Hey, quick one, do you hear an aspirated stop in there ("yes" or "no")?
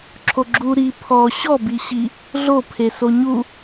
yes